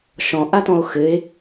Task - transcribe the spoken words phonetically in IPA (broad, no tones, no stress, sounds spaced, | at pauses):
ʃ ɔ̃ ʔ a t ɔ̃ o̯ x ɘ e̯